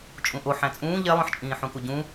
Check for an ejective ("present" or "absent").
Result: present